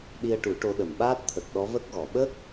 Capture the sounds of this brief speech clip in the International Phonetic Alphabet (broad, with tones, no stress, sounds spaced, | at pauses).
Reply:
ɗ i˧ ə̯ ʈ u˨˩˦ ʈ o˧˥ ɗ ə˨˩ m ɓ aː˦˥ t̚ t̪ʰ ə˨˩ k̚ ɗ ɔ˧˥ v ə˦˥ k̚ ɣ ɔ˨˩˨ ɓ ə˦˥ k̚